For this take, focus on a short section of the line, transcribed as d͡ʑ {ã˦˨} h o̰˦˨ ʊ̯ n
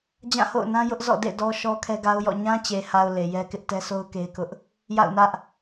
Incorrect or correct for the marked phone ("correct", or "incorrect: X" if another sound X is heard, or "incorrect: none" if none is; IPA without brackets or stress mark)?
correct